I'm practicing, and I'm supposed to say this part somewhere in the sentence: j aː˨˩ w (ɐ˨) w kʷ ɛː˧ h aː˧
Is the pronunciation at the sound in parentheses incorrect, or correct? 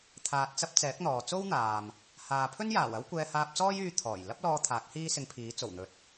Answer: incorrect